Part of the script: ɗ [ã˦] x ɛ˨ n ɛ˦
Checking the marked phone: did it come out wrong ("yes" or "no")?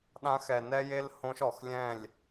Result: no